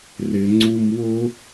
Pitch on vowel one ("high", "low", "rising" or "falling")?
low